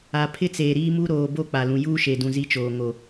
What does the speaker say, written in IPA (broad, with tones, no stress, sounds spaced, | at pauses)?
a˨ pʰ ɪ˦ t͡s eː˨ ɾ iː˦ m u˦ ɾ oː˨ b o˦˨ k͡p a˨ l ũ˨ j uː˦ ʃ e˨ d ũ˨ z i˦ t͡ʃ oː˨ ŋ o˨